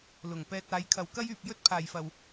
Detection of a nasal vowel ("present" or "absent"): absent